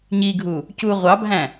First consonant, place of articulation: palatal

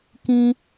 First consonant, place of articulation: velar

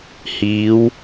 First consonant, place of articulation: glottal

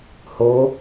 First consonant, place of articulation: glottal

